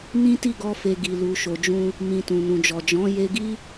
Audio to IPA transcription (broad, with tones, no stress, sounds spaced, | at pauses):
n ĩ˦ t i˦˨ ɡ ɔ˧ f e˨ ɡ i˨ l u˨ ʃ o˨ d͡ʒ ũ˧ | m ĩ˧ t ũ˨ n ũ˨ d͡ʒ ɔ˨ d͡ʒ ɔ̃˨˦ j e˧ ɡ i˦